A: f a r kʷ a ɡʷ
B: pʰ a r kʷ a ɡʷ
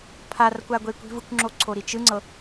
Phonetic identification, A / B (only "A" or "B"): B